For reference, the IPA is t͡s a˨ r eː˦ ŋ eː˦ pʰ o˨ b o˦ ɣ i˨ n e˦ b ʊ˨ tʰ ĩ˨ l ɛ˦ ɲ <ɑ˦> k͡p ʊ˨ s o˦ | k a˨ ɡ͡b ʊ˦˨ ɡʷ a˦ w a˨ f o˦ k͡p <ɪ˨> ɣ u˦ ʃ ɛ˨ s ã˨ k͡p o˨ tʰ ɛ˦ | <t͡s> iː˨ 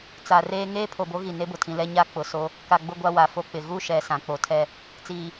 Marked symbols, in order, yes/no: no, yes, yes

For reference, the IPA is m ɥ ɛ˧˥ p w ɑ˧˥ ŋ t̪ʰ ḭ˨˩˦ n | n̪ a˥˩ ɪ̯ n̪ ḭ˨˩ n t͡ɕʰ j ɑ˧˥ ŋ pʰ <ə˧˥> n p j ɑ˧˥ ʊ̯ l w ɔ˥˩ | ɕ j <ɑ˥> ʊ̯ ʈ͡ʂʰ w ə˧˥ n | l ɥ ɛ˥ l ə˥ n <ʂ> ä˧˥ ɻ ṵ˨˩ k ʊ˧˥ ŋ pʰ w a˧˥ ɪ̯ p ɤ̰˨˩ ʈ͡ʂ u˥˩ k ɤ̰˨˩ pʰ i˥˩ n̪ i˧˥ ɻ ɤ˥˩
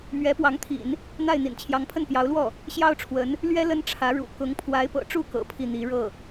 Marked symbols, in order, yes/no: no, yes, no

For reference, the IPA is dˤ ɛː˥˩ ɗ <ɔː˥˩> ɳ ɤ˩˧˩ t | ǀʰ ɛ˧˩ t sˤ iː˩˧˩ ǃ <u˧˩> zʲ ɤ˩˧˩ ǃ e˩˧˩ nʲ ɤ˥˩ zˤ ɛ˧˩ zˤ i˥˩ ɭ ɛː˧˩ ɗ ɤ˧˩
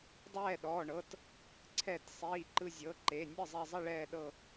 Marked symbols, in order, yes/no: no, no

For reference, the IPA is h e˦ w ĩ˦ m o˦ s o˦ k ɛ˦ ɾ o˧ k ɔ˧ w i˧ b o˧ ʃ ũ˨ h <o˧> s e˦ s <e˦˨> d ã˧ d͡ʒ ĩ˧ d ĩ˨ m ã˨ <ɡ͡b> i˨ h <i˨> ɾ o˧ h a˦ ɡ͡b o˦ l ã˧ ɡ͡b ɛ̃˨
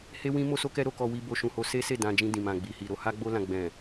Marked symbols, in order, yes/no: yes, yes, yes, yes

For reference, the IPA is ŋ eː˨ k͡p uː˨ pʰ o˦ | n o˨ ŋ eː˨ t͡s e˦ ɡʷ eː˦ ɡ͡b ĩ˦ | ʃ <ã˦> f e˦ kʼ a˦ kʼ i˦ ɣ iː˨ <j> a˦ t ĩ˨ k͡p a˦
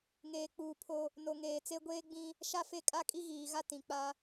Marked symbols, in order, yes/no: no, no

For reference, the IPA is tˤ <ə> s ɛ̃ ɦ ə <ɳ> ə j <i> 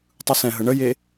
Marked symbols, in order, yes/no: no, yes, no

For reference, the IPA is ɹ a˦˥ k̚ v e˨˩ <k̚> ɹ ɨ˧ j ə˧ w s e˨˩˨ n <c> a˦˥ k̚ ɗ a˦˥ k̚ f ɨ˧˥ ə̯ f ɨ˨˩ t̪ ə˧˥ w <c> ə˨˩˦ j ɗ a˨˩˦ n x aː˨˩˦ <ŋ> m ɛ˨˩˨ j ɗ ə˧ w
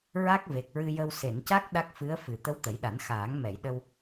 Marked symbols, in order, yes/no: yes, yes, no, yes

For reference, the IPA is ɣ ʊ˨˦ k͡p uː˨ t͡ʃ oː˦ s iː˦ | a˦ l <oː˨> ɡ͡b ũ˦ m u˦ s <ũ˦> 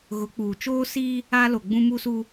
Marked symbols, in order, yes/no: no, no

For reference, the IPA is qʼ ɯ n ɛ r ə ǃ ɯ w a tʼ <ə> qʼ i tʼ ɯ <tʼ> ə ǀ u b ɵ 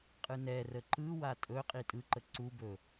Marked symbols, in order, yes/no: no, no

